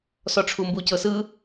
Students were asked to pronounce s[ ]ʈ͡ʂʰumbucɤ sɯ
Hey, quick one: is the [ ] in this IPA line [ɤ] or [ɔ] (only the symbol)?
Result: ɔ